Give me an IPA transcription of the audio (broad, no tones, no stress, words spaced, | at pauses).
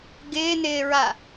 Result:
ɡɪːnɪːɹa